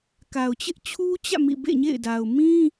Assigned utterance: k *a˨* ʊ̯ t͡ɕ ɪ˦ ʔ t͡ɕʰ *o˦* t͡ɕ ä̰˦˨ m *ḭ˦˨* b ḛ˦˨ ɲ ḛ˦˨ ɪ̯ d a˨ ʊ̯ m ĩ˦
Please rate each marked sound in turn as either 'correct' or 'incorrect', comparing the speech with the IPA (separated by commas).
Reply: correct, incorrect, correct